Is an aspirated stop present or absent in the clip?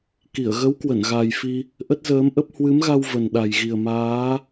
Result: absent